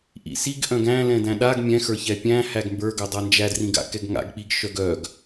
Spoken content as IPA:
ʔ ḭ s i ɡ ʔ œ̃ ɡ æ̃ l ɛ̃ d æ̃ ɗ a ɡ mʲ ɛ̃ x ə˞ ç ɛ pʲ æ̃ h æ ɡ m b ə˞ ɡ œ dˤ a n d͡ʒ æ d r ĩ ɡ a̰ k ɛ ɡ ŋ a̰ ɡ k͡p i ɡ ʃ œ ɡ œ ɡ

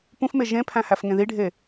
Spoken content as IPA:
p ũ f m e ʒ ẽ pʰ æ̃ h æ f ŋ ẽ ð i ɖʱ e

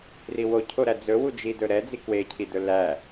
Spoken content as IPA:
r i w o cʰ o ɾ æ d͡z ɵ w u d͡ʒ i d ɵ ɾ ɛ d͡z i k w e cʰ i d ɵ l æ

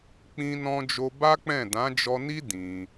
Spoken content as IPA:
k͡p ĩ˧ n ɔ̃˧ d͡ʒ o˧ b a˦ k͡p ɛ̃˦˨ d ã˨˦ d͡ʒ ɔ˧ n i˦ d ĩ˧

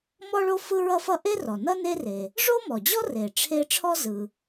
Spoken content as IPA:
m ɔ˥ ɭ o˥ f ɯ˥ ɹ ʌ˥ f ʌ˥ ʔ e˥ r ɔ˩ n ʌ˥ n e˥ r e˩ | ʐ o˥ m ɔ˩ d͡ʑ ɔ˥ r e˩ ʈ͡ʂʰ e˥ ʈ͡ʂʰ ɔ˥ z ɯ˩

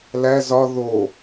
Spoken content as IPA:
l æ z ɒ ð o

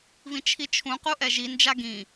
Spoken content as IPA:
v ĩ t͡ʃʰ i t͡ʃʰ ũ q u ʔ ɛ ʒ i n d͡ʒ a ɡ ĩ

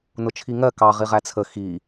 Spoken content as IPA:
n ʊ t͡ʃʰ i ŋ ɜ k ɑ ʁ i ʁ æ t͡sʰ ə x i

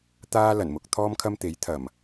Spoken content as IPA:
t̪ aː˥ l ɐ˨˩ n m ʊ˨ k̚ t̪ʰ ɔː˥ m kʰ ɐ˥ m t̪ e˨˥ j t̪ʰ ɐ˨˩ m

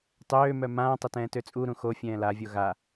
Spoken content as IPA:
tˤ øː m œ m ãː tˤ ə t ɛ̃ː t ø t͡sʼ u ɾ ũ x o fʲ ɛ̃ː l a vʲ o ɣ a

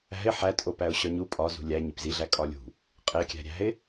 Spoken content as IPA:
æ̤ ɪ̯ ħ æ tʼ o p æ ʊ̯ ɕ ɒ ɲ u pʼ ɒ z ṳ lʲ æ ɲ i p z i ɮ æ kʼ ɒ lʲ ṳ | qʼ e kʲ æ̤ ɾʲ æ̤ ɪ̯

